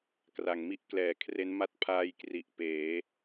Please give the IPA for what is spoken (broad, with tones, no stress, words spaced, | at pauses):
kra˩˦ŋmi˦˥ʔklɛː˨˩kʰre˦˥n ma˦˥t̚pʰaː˧j kri˨˩ʔpeː˩˦